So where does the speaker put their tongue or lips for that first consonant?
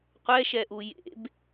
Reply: uvula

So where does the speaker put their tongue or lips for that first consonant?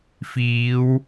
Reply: lips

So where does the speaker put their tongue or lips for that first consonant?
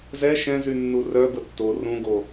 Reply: tongue tip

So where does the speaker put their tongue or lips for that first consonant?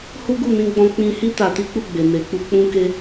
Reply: throat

